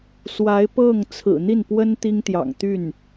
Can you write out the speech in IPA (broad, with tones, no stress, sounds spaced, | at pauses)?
s w a˧˥ ɪ̯ p ɤ˥˩ ŋ t͡sʰ ɹ̩˨˩ n̪ i˥˩ n p w ə˥ n t̪ i˥ ŋ t̪ j ɑ̰˨˩ ŋ t̪ y˥˩ n